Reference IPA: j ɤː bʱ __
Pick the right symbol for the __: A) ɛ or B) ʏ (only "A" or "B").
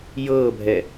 A